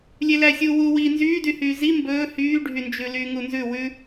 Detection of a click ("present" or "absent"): absent